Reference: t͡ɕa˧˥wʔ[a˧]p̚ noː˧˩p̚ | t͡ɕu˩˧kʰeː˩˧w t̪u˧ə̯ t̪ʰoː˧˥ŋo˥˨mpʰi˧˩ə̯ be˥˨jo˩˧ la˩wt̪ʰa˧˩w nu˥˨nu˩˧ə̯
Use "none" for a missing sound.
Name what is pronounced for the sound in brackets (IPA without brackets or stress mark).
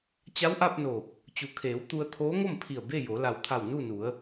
a˧